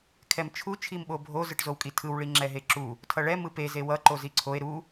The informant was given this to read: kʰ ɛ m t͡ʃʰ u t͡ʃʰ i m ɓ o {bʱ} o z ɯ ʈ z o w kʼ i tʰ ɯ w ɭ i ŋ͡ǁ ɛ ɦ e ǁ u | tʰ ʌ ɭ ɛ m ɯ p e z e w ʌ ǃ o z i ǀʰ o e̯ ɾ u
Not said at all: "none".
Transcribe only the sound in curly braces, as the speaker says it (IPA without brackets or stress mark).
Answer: bʱ